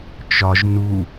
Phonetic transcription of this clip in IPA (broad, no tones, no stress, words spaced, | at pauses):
t͡ʃɒʒ nu